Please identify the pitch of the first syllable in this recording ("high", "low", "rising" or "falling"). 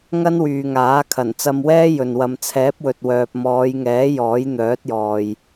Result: high